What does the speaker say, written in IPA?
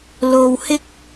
l o˨ w h ɪ˥ k̚

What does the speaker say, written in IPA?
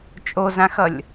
t͡ʃʼ o z ã x ʌ lʲ

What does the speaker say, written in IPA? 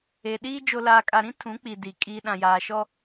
e˨ ɗ iː˦ d͡ʒ o˨ l aː˨ kʼ a˨ ɾ ĩ˦ tʰ ũ˨˦ k͡p i˨ d i˨ kʼ iː˨ ɗ ã˨ j aː˨ ʃ ɔ˦

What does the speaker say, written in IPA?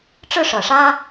ʈ͡ʂ ɻ̩˥˩ ʂ ɤ˨˩ ʂ ä˥

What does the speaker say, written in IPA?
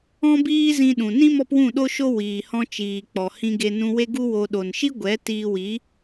ɔ̃˦ b iː˦ z ĩ˧ ɗ ũ˨ n ĩ˦ m ɔ˦ p w ũ˦˨ ɗ o˦ ʃ o˦ w iː˨ h ɔ̃˧ t͡ʃ iː˨ k͡p ɔ˨ h ĩ˧ ɡ e˧ n ũ˧ w e˦ ɡ u˦ w o˧ ɗ o˨ n ʃ i˦ ɡʷ ɛ˨˦ t iː˧ w i˨˦

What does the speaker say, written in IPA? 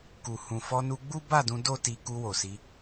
k u˨ h ũ˨ f ɔ˧ n u˧ ɡ͡b u˦ b a˦˨ d ũ˧ d o˦ t i˧ k u˧ w o˨ s i˧

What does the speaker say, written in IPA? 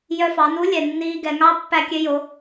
j œ˧ f ɑ˩˧ n u˧˥ lʲ ɛ˩ nː iː˧ ɡ ɛ˩˧ ŋ ɑ˧˥ pː æ˧ kʲ ø˧ j o˩˧

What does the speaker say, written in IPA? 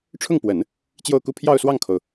ʈ͡ʂʰ ʊ˥˩ ŋ p w ə˨˩˦ n | t͡ɕ j o˥˧ ʊ̯ k u˥˧ pʰ j ɑ˥˧ ʊ̯ s w ɑ˥˩ ŋ kʰ o˩ ʊ̯

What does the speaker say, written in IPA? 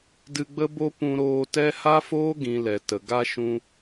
d ɨ˧ ɡ͡b ə˦ b o˦ p ũ˧ ɾ oː˧ t ɛ˦ h a˦ f oː˦ ɡ ĩ˨ l ɛ˨ t ə˨ ɡ a˦ ʃ ũ˧

